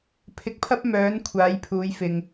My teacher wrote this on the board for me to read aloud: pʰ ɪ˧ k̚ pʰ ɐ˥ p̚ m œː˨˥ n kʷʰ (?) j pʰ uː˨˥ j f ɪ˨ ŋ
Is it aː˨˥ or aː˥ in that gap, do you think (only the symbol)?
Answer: aː˨˥